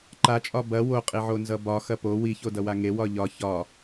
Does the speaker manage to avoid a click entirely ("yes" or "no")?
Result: no